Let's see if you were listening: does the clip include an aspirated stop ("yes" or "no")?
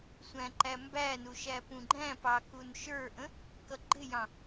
no